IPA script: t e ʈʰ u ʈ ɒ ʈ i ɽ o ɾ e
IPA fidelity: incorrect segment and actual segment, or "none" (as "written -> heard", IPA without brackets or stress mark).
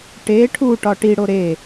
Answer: t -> ʈ